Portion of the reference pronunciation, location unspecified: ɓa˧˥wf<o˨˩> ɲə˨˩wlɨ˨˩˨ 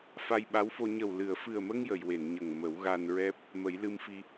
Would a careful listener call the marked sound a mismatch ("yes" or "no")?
yes